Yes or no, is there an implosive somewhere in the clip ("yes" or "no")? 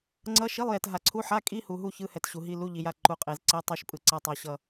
no